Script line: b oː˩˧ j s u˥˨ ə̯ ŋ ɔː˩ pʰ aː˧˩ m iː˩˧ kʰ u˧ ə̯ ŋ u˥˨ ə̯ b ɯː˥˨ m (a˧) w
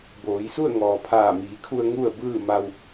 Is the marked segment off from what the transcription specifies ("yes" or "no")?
no